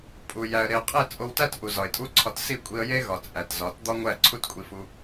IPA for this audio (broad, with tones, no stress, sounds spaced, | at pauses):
pʼ u˨ j æ˨ ə̯ ɾ e˨ ʊ̯ qʼ e˦˨ t͡sʼ o˧ w t æ˦ t ʔ u˨ z ɒ˨ ɪ̯ tʼ u˦ ǀʰ ɒ˧ t s i˦˨ kʷʼ i˧ ə̯ j e˦ ɣ ɒ˨ t͡sʼ æ˨ t z ɒ˨˦ t d̪ ɒ˦ ŋʷ æ˦˨ ǀʰ u˦ t kʷʼ i˧ f u˧